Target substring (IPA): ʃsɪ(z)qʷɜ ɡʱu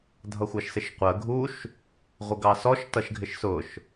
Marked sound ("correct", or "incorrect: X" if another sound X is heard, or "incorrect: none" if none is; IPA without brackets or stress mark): incorrect: ʃ